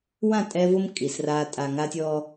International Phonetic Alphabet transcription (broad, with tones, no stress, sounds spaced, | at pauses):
w ã˦˨ tʼ ɛ˦ v ʊ˦ m kʼ i˨ s r aː˦ tʼ a˨ ŋ a˦ tʲ ɔ˦